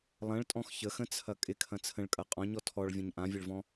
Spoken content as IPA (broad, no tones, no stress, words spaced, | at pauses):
lˠɐ̃ɭtʼɔ̃x çəxə̃t͡sʰɐ kʼɪkʰɐ̃ t͡sʰə̃ɭkʼɐ qʼɔ̃ɲɔ tʰɔɭvʲɐ̃ɲ ʔãvʲɘɭvɔ̃